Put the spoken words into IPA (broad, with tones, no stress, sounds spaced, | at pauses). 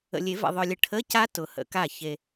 ə̰˨ lʲ e˨˩˦ v ɛ̰˨ ðˤ œ˨ lʲ ə˨˦ ʈʰ ə˧˥˧ c a˦˥ t ʊ˨˩˦ h ə̰˨˩˦ k a˥˩ ç e˨